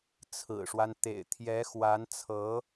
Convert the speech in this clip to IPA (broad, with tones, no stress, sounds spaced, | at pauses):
t͡sʰ ɹ̩˨˩ ʂ w a˦ n t̪ ḛ˨˩ ɪ̯ t̪ʰ j ɛ˧˥ x w a˧˥ n t͡sʰ ɤ˧˥